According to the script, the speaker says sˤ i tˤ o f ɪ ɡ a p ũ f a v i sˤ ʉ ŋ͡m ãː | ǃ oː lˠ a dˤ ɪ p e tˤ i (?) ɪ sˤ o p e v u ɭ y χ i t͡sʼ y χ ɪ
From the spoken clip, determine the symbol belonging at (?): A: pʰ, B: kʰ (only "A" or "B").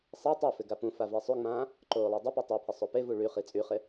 A